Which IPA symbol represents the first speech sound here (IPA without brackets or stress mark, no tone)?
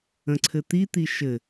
ə̃